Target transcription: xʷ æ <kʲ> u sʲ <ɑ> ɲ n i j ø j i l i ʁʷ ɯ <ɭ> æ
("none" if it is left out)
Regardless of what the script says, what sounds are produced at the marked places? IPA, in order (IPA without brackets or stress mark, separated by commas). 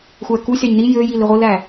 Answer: k, ɑ, l